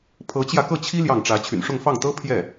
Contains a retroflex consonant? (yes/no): yes